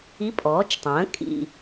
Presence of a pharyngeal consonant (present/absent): absent